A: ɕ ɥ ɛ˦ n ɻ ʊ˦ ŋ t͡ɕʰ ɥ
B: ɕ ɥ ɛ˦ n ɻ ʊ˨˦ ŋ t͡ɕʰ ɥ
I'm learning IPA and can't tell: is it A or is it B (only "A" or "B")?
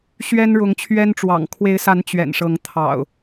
B